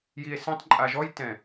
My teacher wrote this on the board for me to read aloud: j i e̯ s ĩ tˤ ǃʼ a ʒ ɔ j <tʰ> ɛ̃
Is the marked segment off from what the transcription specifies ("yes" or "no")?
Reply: yes